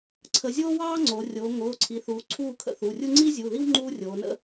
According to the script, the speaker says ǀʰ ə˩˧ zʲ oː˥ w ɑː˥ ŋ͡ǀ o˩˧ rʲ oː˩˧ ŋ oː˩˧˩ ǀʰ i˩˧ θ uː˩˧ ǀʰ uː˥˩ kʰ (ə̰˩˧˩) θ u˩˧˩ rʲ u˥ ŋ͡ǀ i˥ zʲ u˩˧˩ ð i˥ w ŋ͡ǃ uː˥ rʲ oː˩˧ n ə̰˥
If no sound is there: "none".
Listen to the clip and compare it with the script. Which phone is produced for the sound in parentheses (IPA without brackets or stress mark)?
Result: ə̰˥˩